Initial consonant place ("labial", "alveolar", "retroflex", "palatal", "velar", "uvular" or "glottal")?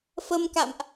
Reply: labial